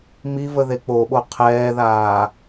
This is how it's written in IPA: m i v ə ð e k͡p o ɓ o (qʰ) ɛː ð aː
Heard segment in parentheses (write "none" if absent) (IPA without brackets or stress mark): qʰ